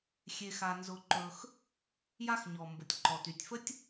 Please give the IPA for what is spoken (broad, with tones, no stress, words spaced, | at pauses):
xʲe˨x a˨nzʊ˨ǃɵ˨x | ja˥xɲɔ˩mbʊ˩tʲ ǃɔ˩ty˩tʲfə˥tʲ